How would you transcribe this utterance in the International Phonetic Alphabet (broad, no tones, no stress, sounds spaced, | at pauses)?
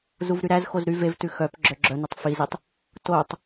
z u v ɾ y ɾ æ z x o z ɾ y v e v t ʉ x œ p ɡ͡ǁ œ ɡ͡ǁ œ n e tˤ f i z i tˤ | t o tˤ